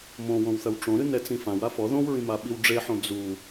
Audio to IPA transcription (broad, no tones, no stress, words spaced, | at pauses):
mõwõwθɐw ʈ͡ʂõɾɨnɛt͡sĩ fãwa fɔ ðõwɹĩmaɓiw ɖ͡ʐeħõ d͡zu